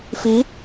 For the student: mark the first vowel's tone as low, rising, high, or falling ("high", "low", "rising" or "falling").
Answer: rising